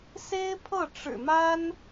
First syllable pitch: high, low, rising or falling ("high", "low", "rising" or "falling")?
high